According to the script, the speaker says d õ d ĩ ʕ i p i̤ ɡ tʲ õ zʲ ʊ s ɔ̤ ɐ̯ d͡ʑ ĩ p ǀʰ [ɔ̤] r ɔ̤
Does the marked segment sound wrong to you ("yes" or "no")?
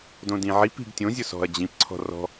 no